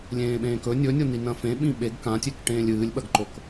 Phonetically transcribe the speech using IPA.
lʲ ẽː ɓ ẽː k ɵ nʲ ɵ nʲ o n i n ɐ̃ f ẽ ɓ ĩ ɓ e ɡ k ã tʲ e k ʈ ẽː lʲ ɨː lʲ ɓ ɐ ɡ ǃ o k

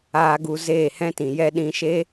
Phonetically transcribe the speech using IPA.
aː˧ ɡ u˧ z eː˦˨ h ɛ̃˦ t ĩ˨ j ɛ˦ ɗ ĩ˧ ʃ e˦

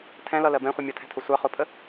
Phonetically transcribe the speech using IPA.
tʰ ɛ̃ l ʌ l ɜ b ɛ̃ χʷ ɪ mʲ ʌ tʰ ɛ̤ tʰ ʊ sʷ ɑ χ ʊ pʰ ə

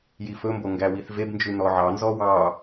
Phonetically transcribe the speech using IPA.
j i f ɵ m b o ŋ ɡ æ w i θ v e b n d͡ʒ ʉ n ɔ ʕ ɑ n z ɔ w ɑ

